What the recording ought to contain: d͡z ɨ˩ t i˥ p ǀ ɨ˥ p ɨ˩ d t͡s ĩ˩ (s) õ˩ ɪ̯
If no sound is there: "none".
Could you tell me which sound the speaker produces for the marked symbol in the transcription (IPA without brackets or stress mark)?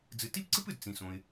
s